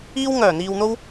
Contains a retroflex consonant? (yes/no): no